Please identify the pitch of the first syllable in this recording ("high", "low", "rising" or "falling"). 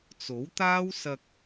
rising